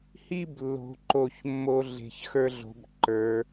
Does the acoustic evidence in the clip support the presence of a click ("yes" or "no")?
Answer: yes